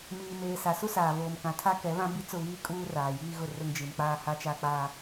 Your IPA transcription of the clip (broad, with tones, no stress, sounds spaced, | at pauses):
m iː˨ m eː˨ s a˨ s u˦ s aː˨ v oː˨ m k ã˨ tʰ a˦ k ɛ˨˦ β ã˦ b i˦ t͡s ʊ˦˨ β iː˦ kʼ uː˦ r aː˨ j iː˦ ɣ ʊ˦˨ r ʊ˦ ŋ d͡ʒ i˨ n k͡p aː˦ h a˦ t͡ʃ a˦ k͡p aː˦